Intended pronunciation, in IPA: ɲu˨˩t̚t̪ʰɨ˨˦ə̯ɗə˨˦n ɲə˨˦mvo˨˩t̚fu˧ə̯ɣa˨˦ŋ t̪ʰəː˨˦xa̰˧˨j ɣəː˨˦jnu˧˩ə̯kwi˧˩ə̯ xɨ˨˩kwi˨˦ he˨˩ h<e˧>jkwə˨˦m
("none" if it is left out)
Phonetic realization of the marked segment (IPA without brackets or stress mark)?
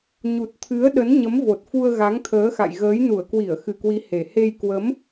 e˧